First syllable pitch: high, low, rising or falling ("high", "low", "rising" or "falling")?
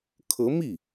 rising